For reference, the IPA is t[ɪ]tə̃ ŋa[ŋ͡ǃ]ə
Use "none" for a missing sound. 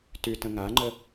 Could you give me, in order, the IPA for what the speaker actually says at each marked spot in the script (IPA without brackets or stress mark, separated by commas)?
y, ŋ͡ǃ